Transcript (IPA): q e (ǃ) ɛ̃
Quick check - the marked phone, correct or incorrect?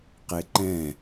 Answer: correct